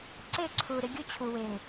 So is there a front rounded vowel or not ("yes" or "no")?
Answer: no